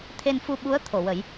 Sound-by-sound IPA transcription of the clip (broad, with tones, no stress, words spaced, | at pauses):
t̪ʰe˧nfu˧ɓu˧˥ə̯ t̪ʰo˨˩˨wə˨˩˦j